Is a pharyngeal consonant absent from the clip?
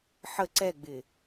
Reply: no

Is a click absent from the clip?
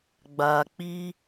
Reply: yes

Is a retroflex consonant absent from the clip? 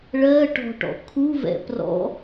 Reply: no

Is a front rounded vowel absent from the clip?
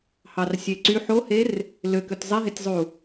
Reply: no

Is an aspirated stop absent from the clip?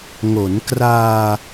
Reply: yes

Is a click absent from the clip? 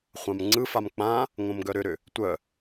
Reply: no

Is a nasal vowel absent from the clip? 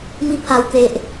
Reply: yes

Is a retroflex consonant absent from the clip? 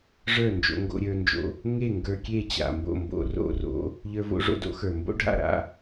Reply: no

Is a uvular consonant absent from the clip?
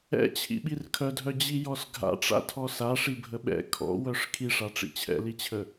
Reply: yes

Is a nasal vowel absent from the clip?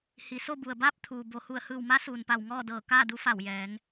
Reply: yes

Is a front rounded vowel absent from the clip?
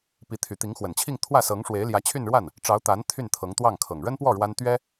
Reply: no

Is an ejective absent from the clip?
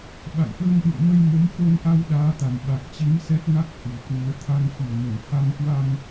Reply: yes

